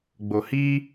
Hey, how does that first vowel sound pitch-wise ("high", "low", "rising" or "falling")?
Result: low